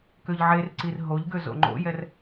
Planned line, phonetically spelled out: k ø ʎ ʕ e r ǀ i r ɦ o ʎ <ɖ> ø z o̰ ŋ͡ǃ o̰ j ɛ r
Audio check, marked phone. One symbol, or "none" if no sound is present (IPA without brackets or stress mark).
ɡ